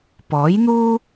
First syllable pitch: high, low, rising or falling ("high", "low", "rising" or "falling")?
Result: rising